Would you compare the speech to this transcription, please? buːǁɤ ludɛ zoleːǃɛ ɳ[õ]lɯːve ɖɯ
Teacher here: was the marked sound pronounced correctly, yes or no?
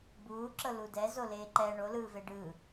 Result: no